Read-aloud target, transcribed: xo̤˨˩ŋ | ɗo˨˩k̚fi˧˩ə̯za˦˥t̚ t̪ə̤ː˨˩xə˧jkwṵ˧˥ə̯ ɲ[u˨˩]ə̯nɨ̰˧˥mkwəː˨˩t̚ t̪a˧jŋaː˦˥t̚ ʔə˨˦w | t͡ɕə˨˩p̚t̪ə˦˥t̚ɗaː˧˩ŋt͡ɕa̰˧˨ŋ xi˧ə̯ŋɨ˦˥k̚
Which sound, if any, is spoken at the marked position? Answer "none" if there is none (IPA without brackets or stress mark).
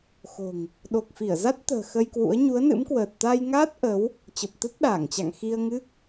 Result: u˨˦